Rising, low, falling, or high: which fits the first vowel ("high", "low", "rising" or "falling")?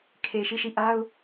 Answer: low